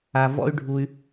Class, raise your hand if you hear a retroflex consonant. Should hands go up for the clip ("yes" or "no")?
yes